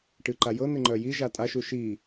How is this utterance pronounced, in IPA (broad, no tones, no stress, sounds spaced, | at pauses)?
ʈ ɨ ǃ a j ɤ n̪ ɪ ŋ͡ǃ œ j i ʒ a tʼ a ʃ u ʃ i